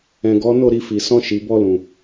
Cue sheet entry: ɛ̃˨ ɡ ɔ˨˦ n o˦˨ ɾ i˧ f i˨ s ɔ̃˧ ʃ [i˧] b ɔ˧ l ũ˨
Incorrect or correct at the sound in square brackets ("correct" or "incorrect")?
incorrect